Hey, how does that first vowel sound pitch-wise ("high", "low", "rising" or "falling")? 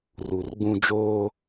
low